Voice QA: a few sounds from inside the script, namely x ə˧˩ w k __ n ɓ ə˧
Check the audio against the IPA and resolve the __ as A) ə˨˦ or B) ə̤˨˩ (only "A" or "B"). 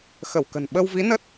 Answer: B